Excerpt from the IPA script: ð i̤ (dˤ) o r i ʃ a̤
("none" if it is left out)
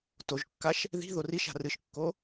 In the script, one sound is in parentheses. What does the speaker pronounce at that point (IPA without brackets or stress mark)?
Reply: ð